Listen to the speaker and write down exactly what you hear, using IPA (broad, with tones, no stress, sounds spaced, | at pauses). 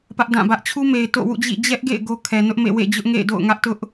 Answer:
p ä˦ ʔ d ã˦˨ b ä˦ ʔ t͡ɕʰ u˦ m e˨ ɪ̯ t o̰˦˨ w ṵ˦˨ d͡ʑ ḭ˦˨ d͡ʑ ɛ˦ ʔ ɡ ḛ˦˨ ɪ̯ ɡ o˦ kʰ ɛ˨ n ʊ˦ ʔ m ḛ˦˨ w ḛ˦˨ d͡ʑ ʊ˦ ʔ ŋ ḛ˦˨ ɪ̯ d o̰˦˨ ʊ̯ ŋ ä˦ ʔ t ʊ˦ ʔ